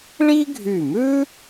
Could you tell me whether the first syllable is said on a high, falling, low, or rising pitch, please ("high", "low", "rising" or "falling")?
high